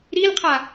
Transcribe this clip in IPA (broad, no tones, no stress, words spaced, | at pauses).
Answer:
ɾilqʰa